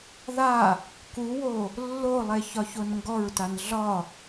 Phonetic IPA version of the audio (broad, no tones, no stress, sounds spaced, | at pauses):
ð a | k u w o | lː o lˠ e ç ɒ ç o n ŋ ɡ ɔ ɹ t a n ɮ ɒ